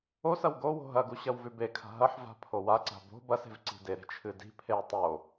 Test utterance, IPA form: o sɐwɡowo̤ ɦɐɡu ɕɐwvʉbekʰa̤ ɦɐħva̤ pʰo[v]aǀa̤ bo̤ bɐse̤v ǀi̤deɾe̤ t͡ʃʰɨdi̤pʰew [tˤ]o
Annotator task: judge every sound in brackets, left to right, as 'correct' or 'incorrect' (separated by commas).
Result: incorrect, correct